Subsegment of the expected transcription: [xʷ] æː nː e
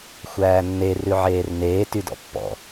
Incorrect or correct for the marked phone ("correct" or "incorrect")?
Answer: correct